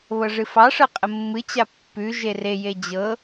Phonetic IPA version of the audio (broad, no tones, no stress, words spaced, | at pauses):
βɤʐɨfɑʂɤ qʼəmːɨt͡ɕa pːʉ ʒereje d͡ʑɤ